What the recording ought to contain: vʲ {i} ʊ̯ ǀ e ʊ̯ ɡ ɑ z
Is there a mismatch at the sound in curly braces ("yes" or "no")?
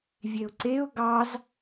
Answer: yes